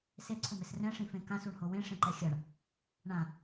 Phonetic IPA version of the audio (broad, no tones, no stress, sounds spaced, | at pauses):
s e ǀʰ ʊ m ɪ s r ɛ̃ ʂ ĩ f ẽ k ã s u ɳ h o w ẽ ʂ ẽ ǃ ɛ xʲ a ɳ | ɳ ã